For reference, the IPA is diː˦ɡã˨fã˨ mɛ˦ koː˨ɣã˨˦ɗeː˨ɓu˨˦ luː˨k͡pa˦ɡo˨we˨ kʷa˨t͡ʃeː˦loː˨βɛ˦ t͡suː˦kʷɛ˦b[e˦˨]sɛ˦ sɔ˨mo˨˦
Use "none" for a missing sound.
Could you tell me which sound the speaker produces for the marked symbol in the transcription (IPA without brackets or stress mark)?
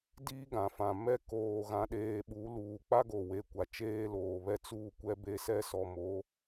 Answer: e˦